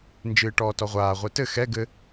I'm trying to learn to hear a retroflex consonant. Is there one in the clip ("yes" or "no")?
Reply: yes